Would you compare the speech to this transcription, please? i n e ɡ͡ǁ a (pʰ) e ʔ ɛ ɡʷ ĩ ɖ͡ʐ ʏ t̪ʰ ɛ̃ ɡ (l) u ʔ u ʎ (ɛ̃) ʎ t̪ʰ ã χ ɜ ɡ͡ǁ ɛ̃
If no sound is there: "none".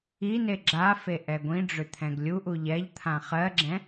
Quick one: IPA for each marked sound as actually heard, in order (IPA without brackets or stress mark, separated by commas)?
f, lʲ, ɛ